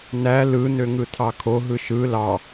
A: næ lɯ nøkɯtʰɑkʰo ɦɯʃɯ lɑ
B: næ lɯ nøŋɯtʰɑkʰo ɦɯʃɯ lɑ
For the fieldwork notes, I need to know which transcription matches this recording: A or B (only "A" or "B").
B